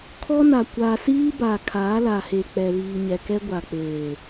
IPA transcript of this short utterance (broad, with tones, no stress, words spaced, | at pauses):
kʰɔ˦na˨ kʷaː˨siː˦ ba˨kʰaː˨˦la˨he˨ k͡pɛ˨βiː˨ɲɛ˨kɛ˦ ɡʷa˨k͡peː˨